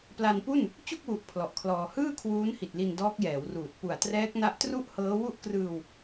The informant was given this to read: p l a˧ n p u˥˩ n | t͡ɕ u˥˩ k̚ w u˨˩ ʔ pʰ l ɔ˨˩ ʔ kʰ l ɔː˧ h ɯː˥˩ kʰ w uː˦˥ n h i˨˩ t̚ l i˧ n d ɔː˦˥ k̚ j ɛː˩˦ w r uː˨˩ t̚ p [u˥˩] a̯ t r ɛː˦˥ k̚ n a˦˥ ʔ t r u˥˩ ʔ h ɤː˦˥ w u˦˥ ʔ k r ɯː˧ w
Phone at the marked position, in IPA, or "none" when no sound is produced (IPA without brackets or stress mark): u˨˩